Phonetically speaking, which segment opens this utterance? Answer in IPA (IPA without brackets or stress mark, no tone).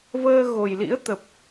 v